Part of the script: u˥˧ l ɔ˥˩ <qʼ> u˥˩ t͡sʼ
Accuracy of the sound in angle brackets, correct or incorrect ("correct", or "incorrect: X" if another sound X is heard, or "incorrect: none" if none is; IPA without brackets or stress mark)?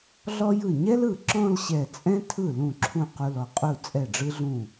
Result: correct